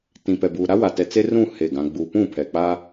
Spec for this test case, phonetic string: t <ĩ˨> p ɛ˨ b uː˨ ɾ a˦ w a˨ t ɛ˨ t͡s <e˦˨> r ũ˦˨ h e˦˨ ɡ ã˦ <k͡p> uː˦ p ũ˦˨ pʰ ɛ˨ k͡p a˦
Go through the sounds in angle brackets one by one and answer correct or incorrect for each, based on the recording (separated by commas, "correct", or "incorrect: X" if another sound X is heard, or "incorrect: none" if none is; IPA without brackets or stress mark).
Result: correct, incorrect: e˦, incorrect: ɡ͡b